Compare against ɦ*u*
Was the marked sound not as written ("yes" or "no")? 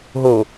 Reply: yes